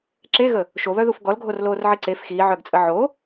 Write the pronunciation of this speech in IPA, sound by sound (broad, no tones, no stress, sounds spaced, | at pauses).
ǁ e ɣ ə | ʃ o β œ ð u f ɡ ɔ l ɡʱ o r l oː r ʕ i ǀ e f x iː ʕ œ ɡ t͡sʼ ə ʕ o